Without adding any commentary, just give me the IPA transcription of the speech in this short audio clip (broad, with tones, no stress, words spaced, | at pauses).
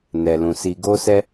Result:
nɛ˨lũ˨ si˨ɡo˧sɛ˧